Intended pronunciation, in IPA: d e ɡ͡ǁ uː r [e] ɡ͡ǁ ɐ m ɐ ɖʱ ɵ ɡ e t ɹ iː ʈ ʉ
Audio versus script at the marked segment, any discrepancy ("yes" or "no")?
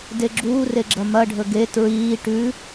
no